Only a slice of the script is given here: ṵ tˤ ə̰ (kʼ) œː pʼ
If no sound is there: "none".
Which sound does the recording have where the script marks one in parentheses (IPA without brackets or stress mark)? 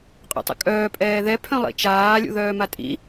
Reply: kʼ